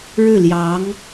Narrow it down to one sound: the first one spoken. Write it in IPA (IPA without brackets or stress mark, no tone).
ɻ